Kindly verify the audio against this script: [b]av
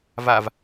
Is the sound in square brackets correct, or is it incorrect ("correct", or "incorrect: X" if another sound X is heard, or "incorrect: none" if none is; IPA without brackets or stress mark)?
incorrect: v